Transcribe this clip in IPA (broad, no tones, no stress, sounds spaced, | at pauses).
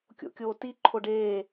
kʲ o̰ kʲ oː t i ǃʰ o ɖ eː